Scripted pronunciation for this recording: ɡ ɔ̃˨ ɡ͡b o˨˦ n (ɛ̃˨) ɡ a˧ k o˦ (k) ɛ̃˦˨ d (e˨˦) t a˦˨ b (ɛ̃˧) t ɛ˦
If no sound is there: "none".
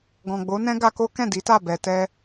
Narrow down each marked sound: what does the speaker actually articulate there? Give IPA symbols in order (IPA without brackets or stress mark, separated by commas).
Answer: ɛ̃˦, k, i˨˦, ɛ˧